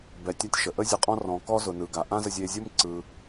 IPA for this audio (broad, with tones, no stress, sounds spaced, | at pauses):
b ɛ˩ tʲ a˧ tʲ ʃ ə˩ ʔ ə˥ zʲ ə˧ qʼ ɔ̃˥ r ɔ̃˩ k ɔ˥ z ʊ˩ n ɯ˩ ɡ a˩ ʔ ã˥ z ə˧ zʲ e˧ zʲ ʊ˥ m ǀ ɯ˩